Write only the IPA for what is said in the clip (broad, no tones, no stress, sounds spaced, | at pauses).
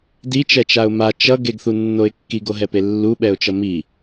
d i t͡ʃ ɛ t͡ʃ a ʊ̯ m a t͡ʃ ʌ ɡ e ɡ θ u nː o ɪ̯ kː i ɡ o ɦ ɛ p e lː u ɓ ɛ ʊ̯ t͡ʃ ʌ m i